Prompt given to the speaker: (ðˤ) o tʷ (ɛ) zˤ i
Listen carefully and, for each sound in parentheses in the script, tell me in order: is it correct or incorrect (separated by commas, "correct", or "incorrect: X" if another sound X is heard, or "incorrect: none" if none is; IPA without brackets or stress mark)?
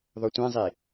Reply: correct, incorrect: ɛ̃